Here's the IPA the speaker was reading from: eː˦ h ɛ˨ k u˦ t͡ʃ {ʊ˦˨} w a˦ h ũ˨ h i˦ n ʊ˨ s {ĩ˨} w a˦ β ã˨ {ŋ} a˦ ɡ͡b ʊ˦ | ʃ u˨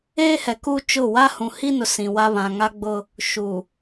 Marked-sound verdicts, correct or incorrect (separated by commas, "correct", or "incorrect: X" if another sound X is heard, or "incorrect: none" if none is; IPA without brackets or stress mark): correct, correct, correct